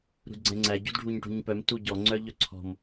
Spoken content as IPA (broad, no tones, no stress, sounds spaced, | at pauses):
ɾ ṳ d ɡ͡ǀ ɛ̃ ŋ͡ǀ æ ɟ ṳ d ɖʱ u ɲ ʈ ṳ ɲ p œ m t u ɟ ɔ ŋ͡ǀ œ ʎ œ ǀʰ ɔ̤ m